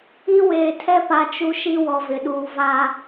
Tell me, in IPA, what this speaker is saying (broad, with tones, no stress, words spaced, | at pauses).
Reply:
i˦weː˨ tʰɛ˦pa˨ t͡ʃu˦ʃi˦ wɔ˨vɪ˨ɗuː˨va˦